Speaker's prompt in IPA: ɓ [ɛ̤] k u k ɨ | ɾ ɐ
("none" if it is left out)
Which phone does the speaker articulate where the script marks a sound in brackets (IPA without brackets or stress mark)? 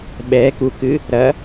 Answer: ɛ